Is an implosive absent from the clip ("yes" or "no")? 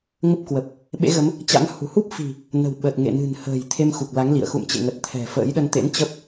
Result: no